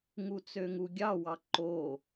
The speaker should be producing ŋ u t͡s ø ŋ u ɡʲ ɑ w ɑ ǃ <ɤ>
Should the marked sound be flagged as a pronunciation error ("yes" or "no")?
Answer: yes